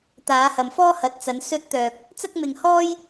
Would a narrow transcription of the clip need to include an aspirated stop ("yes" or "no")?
no